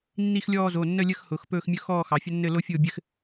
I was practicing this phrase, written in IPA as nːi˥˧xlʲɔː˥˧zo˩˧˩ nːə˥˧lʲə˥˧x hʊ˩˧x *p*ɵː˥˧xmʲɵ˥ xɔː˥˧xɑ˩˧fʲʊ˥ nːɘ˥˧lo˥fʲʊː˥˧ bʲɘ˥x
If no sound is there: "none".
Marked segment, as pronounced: p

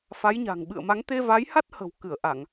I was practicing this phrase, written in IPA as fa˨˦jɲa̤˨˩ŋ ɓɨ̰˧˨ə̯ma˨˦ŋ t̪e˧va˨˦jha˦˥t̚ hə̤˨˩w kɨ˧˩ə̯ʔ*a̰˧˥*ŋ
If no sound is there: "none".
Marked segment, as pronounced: a˧˩˨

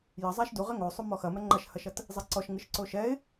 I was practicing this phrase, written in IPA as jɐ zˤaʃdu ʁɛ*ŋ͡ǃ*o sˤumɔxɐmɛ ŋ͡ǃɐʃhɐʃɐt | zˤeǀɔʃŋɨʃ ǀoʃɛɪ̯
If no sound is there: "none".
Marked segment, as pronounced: ŋ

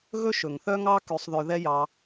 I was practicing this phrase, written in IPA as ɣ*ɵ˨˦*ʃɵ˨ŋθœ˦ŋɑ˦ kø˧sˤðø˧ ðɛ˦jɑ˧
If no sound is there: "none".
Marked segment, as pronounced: ɵ˦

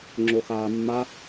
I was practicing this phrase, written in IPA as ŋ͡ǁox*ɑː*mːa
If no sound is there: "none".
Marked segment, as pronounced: aː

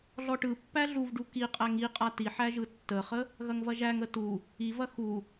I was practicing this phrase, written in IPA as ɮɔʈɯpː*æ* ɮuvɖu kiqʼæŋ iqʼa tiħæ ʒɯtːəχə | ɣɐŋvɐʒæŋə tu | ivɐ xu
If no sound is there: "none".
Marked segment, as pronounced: æ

